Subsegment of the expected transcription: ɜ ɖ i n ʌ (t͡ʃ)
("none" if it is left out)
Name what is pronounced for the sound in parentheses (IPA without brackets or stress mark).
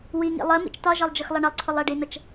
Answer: t͡ʃ